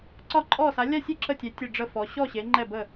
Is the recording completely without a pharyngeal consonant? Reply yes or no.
yes